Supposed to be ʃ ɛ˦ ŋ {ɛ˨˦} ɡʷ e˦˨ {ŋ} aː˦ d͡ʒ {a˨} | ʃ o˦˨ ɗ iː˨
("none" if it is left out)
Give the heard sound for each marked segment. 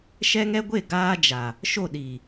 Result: ɛ˦, ɡ, a˨

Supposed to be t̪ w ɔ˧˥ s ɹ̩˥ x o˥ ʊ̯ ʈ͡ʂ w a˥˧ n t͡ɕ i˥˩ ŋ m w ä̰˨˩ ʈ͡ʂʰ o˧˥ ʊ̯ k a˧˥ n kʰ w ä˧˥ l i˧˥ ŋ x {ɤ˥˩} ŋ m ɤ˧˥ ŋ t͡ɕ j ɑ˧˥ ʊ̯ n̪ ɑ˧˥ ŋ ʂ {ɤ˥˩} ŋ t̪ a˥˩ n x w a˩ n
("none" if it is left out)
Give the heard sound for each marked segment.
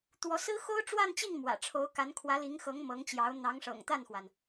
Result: ɤ˧˥, ɤ̰˨˩

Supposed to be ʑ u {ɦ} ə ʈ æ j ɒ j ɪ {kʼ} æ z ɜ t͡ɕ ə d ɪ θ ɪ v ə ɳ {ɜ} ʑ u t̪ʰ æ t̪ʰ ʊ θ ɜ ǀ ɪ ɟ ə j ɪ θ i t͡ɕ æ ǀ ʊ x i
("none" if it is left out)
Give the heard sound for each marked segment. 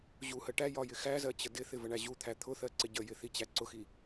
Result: h, x, æ

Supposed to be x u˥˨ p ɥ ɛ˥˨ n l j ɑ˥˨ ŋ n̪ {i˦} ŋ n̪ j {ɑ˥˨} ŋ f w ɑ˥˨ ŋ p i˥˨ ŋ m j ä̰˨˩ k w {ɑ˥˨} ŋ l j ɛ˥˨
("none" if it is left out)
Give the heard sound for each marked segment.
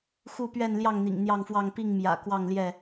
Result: ḭ˨˩, ɑ˥˨, ɑ˥˨

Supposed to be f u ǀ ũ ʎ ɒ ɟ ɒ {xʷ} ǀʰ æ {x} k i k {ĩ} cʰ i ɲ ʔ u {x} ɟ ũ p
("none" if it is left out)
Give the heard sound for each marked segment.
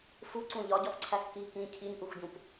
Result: x, x, ĩ, x

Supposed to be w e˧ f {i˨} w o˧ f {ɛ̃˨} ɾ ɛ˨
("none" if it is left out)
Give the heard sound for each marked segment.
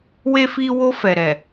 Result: i˧, ɛ˨

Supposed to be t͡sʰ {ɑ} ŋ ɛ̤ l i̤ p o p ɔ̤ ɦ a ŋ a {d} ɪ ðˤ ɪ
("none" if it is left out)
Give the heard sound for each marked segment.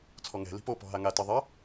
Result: ɔ, t

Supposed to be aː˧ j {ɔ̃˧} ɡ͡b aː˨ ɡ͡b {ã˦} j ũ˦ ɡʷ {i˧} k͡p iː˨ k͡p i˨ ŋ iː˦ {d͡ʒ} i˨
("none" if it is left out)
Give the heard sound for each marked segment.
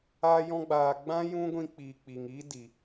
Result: ɔ̃˧, ã˦, ĩ˧, d

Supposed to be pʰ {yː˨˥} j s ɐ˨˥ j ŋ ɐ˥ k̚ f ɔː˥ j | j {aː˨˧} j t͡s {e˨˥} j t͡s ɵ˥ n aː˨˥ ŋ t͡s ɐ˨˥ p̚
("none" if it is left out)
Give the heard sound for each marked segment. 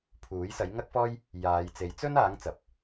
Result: uː˨˥, aː˨˧, e˨˥

